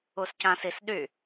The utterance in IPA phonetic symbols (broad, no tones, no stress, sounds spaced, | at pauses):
u s c ã s i s ɗ y